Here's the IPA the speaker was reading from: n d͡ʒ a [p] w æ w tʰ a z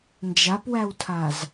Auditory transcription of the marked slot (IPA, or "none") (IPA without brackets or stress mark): p